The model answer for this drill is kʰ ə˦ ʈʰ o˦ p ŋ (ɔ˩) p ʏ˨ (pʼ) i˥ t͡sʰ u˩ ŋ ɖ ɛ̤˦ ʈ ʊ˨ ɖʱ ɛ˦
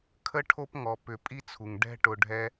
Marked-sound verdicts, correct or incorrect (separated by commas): correct, correct